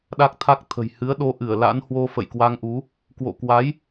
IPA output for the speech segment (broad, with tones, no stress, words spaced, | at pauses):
ɗa˦˥k̚t̪ʰa˦˥k̚t̪ʰə̤˨˩j hɨ˨˦ə̯ɗo˨˦ ʔɨ˧˩ə̯ la̰˧˥nhwo˧ fə̰˧˨jkwa˧ŋʔu˨˦ | kwo̰˧˨kwa˨˦j